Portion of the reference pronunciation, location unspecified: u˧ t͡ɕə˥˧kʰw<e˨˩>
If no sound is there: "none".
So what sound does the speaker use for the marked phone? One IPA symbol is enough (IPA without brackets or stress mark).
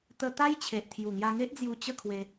e˧